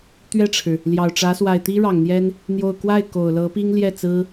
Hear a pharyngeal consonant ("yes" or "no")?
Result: no